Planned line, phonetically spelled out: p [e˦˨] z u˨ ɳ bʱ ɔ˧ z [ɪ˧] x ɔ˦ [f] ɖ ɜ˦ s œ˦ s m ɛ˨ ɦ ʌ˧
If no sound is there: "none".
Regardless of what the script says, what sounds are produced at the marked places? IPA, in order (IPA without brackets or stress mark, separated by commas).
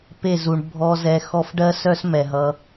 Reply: e˦˨, ɛ˧, f